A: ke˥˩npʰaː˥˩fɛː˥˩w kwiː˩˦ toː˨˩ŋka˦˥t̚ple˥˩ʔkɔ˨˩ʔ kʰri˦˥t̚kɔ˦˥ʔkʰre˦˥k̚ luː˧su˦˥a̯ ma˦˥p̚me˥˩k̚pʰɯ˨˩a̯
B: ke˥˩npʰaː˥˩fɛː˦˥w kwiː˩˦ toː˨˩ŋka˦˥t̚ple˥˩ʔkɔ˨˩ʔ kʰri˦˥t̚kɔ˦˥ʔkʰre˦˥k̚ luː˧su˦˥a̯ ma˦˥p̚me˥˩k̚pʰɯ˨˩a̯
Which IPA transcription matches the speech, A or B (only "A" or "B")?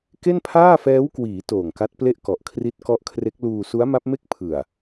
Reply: B